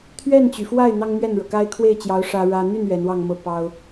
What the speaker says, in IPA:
t̪ʰɥɛ˥˩nt͡ɕy˩fwa˥˩ɪ̯ n̪ɑ˥ŋ mɥɛ˥˩nɻɤ˩ka˥ɪ̯ kʰwe˥˩ɪ̯t͡ɕjɑ˧˥ʊ̯ ʂä˥ɻä˥ n̪y˥˩n ɥɛ˧˥nwɑ˥˧ŋmɤ˥˩ pɑ˥ʊ̯

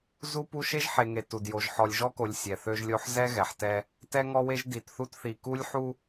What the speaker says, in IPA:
zu˦pu˦ ʃe˦ʒħe˨ŋe˨ tu˨djo˨ʒ ħɔ˨lʲʒɔ˦ko˨lʲ sʲɛ˨θø˦ʒlʲo˦ħ zɛ˦ɣɛ˨ħtɛ˦ | tɛ˦ŋɔ˦we˦ʒ di˨tθu˦tθi˨ ku˦lʲ ħu˦

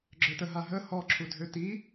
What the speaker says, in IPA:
ɡ͡ǁœtəɦa ɦə hɔ ǁʰudʱøti

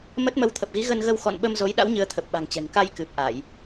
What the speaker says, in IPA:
mə˦˥t̚ mə˨˦wt̪ʰə˨˩p̚ɣi˨˦ ɣə˧nɣə˧w xɔ̰˧˨nɓə˧m zo˨˦jɗa̰˧˥w ɲɨ˨˦ə̯ t̪ʰə˨˩p̚ɓa̤˨˩ŋt͡ɕɛ̤˨˩ŋ ka˧jkɨ˨˩p̚ʔa˧˩˨j

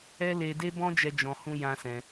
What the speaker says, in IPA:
ɛ˦le˧de˦bɔ̃˦ d͡ʒɛ˦d͡ʒɔ̃˧hũ˦ jã˦sɛ̃˧

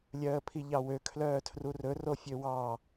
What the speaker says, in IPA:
lʲœːə̯pʰiʎɑwø kʰlœːtʰrurɵ rofʲøwɑ

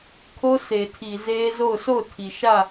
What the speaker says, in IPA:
kʰo˦sʰe˨tʰi˨ ze˦zo˦˨ʊ̯ sʰo˦˨ʊ̯tʰi˨ ʃä˦˨

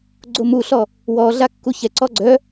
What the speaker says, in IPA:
ɡ͡ǀomuɬɔ | wɔɮa kːuçɛǀɔ ɡ͡ǀœ

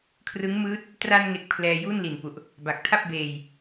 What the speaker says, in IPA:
kʰrɯ˦˥ŋmɯː˦˥t̚ | tra˧nŋe˨˩k̚ pʰlɛː˧ju˥˩nli˨˩npu˨˩ʔ | ba˨˩k̚tʰa˥˩p̚beː˧j

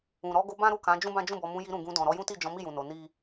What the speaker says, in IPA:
ũ˨ɾɔ˨˦ɡo˧ bã˦ɾu˦˨kã˨˦ d͡ʒũ˦bã˦d͡ʒũ˦˨bɔ˨˦ mũ˧ji˧ ɾũ˨ɡũ˧ dɔ̃˨ɾɔ˨˦jũ˦ ti˦˨d͡ʒɔ̃˨˦mi˦˨ jũ˨no˨˦ ni˦

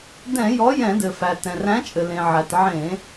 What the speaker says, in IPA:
dɛ̃˧˩˧ jɔ˨˥jɛ̃˧˩˧dɘ˩fæ˩ tɛ̃˩ræ̃˨˥t͡ʃʼɘ˩ lẽ˩ʕæ˩t ʕẽ˧˩˧

